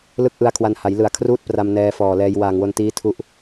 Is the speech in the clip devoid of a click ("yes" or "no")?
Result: yes